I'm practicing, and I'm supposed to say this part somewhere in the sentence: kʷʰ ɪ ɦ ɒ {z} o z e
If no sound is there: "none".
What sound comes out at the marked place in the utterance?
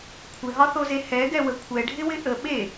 θ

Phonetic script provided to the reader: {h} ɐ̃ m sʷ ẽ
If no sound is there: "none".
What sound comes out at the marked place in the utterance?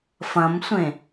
f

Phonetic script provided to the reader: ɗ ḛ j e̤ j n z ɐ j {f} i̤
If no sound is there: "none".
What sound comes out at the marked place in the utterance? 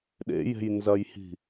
h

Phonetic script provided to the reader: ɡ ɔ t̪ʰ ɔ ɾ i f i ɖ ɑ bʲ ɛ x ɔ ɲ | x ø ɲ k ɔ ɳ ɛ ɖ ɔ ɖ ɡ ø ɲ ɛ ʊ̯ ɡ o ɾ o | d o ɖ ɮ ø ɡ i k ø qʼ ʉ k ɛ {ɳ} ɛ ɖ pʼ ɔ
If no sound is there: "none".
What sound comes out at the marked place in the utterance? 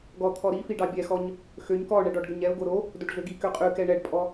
ɳ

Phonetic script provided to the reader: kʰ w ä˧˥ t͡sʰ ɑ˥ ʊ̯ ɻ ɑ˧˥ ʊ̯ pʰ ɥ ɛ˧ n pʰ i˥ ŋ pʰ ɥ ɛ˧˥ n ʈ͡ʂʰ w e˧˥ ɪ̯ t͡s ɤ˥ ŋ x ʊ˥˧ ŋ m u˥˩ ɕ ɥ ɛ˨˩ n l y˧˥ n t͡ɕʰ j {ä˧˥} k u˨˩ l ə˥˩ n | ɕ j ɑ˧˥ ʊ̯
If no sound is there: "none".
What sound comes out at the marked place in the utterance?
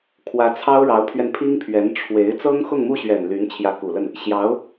ä˧˥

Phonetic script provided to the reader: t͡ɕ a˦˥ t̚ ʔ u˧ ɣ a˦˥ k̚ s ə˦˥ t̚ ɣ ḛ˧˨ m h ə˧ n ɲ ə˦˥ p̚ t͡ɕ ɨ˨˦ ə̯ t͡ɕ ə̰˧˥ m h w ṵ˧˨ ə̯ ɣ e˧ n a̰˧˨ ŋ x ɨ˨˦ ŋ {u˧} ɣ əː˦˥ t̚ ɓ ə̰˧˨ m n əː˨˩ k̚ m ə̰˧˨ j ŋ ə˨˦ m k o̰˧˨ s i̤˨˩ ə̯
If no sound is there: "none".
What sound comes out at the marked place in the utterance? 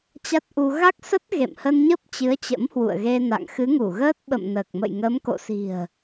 u˧˩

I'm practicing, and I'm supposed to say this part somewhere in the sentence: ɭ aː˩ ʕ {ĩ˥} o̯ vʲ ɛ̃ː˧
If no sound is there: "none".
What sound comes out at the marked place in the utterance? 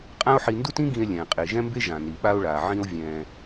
ĩ˥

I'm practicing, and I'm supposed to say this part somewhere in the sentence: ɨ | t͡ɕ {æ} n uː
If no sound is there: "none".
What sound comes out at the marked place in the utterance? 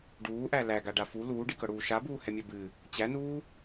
æ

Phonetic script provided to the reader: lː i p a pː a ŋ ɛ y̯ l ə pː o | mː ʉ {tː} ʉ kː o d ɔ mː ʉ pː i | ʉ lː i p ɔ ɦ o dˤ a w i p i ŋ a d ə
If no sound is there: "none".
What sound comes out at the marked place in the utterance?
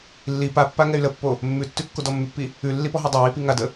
tː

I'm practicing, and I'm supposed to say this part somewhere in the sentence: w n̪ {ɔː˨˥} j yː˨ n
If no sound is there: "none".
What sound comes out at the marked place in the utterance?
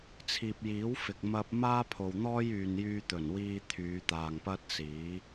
ɔː˥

